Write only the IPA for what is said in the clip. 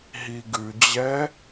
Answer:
ɦ i ɡ ʉ d͡ʑ ɛ

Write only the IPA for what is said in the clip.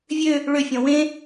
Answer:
vʲ ø | ɭ ø fʲ ɔ̃ w ẽ

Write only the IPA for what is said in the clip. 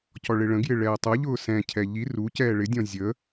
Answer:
c ɔ ɭ ɪ ɭ ə̃ ɡ j ɪ ɭ ɛː tˤ ʌ ʎ ʊː s ɛ̃ cʰ ɛ ʎ i r u c ɛː ɭ ɪ dʲ ɔ̃ zʲ ə

